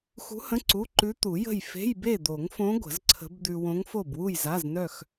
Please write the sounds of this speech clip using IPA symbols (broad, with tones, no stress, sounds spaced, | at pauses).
x ṳ˧˥ h ə̃˧˥˧ ǀ u˧˥˧ ǃ ʉ˧˥ t̪ u˨˩˦ j ə̤˥˨ j f e̤˧˥˧ j b e˥˨ d̪ o˨˩˦ ŋ f õ˧˥ ɡʷ ə̤˨˩˦ z ǀʰ ə̤˧˥ b d̪ ʉ˧ w õ˧˥ ŋ f o˥˨ b w u˥˨ j z a˧˥˧ z n œ˥˨ x